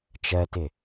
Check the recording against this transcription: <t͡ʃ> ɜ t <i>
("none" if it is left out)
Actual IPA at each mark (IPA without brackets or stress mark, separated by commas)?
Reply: t͡ʃ, ɪ